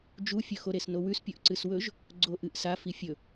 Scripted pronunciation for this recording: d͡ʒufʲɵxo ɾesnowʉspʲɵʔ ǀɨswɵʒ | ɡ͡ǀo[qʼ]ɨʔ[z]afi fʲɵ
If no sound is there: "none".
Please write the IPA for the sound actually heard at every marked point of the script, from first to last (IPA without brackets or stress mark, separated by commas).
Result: ʔ, s